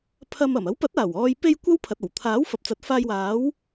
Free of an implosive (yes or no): yes